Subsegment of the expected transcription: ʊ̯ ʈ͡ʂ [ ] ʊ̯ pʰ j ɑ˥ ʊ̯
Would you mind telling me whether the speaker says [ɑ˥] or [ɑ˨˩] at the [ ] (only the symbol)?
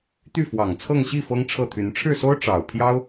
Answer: ɑ˨˩